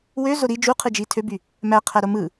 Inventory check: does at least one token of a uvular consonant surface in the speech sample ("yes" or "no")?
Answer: yes